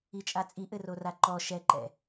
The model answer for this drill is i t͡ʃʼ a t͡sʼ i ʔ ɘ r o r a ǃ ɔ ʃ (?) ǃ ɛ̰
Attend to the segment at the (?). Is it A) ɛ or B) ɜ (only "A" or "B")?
A